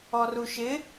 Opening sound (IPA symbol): ɔ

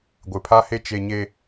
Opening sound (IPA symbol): ɡʷ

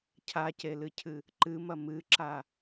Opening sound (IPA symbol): cʰ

